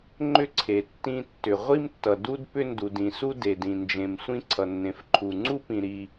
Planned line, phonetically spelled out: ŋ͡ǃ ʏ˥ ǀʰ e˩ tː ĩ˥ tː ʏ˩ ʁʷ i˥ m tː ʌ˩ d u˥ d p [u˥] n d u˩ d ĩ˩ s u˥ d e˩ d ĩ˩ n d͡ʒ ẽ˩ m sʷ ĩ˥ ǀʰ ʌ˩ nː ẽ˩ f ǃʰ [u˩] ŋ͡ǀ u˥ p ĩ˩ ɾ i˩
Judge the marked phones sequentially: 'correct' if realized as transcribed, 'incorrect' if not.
incorrect, correct

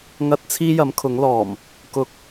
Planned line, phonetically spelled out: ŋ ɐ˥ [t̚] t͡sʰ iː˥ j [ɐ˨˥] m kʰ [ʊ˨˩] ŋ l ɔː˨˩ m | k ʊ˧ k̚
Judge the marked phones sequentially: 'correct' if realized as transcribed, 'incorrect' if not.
correct, correct, incorrect

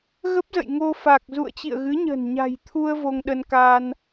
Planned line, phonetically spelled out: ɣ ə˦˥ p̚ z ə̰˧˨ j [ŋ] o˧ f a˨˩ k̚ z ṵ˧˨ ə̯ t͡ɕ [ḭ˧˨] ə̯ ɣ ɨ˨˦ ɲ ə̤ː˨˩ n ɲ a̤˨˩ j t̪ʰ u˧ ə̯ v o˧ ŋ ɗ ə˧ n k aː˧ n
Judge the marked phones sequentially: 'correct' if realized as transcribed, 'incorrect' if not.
correct, correct

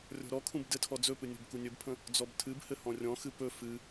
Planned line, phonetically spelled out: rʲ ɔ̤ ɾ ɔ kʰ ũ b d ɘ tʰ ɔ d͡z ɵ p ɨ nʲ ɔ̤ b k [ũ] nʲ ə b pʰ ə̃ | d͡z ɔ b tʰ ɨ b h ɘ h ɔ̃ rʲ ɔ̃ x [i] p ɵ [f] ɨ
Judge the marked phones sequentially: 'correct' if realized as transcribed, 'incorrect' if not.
incorrect, incorrect, correct

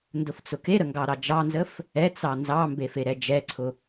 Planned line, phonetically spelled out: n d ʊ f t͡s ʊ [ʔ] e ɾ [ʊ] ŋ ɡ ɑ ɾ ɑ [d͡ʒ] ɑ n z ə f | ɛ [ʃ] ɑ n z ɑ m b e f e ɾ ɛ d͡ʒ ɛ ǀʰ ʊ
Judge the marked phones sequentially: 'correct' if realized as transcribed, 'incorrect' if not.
incorrect, incorrect, correct, incorrect

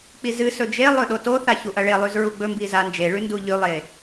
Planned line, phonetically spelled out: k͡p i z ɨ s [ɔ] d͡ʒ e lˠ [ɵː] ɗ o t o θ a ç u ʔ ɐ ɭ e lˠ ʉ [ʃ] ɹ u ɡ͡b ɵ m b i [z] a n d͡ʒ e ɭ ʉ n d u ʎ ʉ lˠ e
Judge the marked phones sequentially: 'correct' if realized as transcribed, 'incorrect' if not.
incorrect, incorrect, incorrect, correct

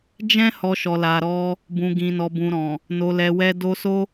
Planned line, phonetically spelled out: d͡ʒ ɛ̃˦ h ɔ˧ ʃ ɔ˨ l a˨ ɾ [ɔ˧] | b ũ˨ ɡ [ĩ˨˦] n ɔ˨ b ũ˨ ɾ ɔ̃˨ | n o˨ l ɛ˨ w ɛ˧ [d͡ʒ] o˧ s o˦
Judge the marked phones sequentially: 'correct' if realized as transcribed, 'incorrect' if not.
correct, incorrect, incorrect

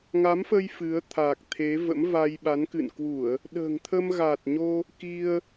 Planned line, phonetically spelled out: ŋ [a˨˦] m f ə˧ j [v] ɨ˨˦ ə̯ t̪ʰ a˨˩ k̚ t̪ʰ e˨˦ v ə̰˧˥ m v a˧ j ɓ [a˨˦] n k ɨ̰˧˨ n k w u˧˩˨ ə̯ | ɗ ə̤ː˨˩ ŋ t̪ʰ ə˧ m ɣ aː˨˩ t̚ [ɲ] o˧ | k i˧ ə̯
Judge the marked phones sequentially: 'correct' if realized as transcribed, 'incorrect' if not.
correct, incorrect, correct, correct

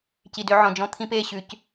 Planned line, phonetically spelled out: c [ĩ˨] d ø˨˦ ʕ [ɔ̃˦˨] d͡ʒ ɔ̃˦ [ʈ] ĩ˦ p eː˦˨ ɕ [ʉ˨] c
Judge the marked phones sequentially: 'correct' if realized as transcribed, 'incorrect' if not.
incorrect, incorrect, incorrect, correct

